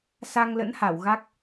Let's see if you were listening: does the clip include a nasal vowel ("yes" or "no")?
no